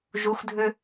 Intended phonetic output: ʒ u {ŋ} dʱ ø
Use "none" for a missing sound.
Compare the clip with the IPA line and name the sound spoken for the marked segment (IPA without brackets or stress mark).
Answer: x